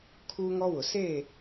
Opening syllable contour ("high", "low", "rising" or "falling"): high